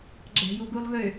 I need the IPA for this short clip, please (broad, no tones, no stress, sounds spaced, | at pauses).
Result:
ɡ͡ǁ æ̤ j u ɡ u lˠ ɣ ø